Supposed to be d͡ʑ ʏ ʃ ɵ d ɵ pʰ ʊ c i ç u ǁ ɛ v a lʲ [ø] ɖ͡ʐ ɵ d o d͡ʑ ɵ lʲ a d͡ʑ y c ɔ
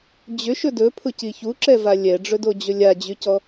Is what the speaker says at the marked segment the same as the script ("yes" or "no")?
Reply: no